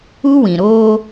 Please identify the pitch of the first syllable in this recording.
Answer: high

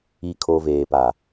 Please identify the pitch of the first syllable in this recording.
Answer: low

